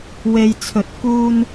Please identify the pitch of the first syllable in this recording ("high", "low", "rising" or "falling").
low